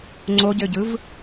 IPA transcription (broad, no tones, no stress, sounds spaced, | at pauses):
ŋ͡ǀ o ɟ ø ɟ ɯ v